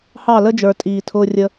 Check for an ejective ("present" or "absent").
present